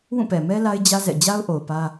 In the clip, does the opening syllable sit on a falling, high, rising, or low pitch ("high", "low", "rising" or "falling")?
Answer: falling